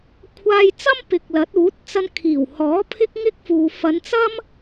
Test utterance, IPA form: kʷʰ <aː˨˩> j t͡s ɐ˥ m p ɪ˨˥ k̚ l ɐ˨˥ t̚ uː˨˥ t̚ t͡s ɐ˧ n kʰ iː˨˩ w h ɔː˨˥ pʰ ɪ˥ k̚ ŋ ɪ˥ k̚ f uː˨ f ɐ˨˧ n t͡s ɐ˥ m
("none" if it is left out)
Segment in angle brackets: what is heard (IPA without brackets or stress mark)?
aː˧